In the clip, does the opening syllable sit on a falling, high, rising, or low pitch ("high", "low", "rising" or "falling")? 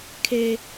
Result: high